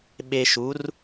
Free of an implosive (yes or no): no